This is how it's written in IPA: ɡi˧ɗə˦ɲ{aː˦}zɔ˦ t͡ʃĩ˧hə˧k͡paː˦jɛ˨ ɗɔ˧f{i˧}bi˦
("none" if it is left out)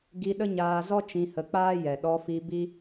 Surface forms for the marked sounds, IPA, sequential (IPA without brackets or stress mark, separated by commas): aː˧, i˧